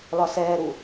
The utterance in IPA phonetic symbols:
l ɒ s ɛː ɾ u

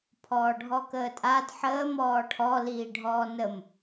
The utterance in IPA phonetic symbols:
pʰ ɔː ɖʱ ɔ k əː tʼ a d ħ əː m ɔː ʈʰ ɔ l iː ɖʱ ɔː n ə m

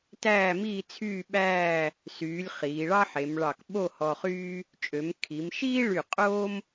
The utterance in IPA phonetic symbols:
t æː˥˧ m iː˥˧ t͡sʰ yː˥˧ ɓ æː˥˧ | s yː˩˧ lʲ χ iː˩˧ ɭ ɑ˥ ħ e˩˧ m ɭ ɑ˧˩ k ɓ o˥˧ h ɔ˧ χ yː˥ | t͡ʃʼ ø˩˧ m kʰ i˩˧ m ʃ iː˥ ɭ y˧˩ qʼ o˥ m

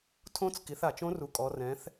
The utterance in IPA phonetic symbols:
tʰ õ˧˥ t͡s k i˩˧ θ a˩ t͡ʃ õ˧˥ r u˩˧ kʼ ɔ˩˧ r ɛ̃˩˧ θ

